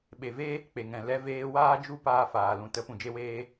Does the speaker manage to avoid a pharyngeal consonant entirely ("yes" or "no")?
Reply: yes